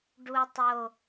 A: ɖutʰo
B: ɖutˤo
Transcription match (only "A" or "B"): B